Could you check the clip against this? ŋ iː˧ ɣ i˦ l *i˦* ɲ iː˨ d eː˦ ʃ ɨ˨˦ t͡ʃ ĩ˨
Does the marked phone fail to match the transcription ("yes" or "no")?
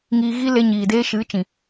yes